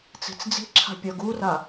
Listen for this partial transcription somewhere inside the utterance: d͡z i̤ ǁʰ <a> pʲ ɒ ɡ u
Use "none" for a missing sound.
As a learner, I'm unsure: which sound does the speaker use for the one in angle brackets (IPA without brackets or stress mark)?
a̤